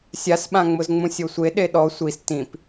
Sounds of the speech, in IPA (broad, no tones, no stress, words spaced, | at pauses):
sʲasɓãŋ͡mʊzŋ͡mũ sʲosʷe ɗeɗɔ sʷis tĩp